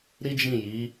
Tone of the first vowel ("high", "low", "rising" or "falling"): high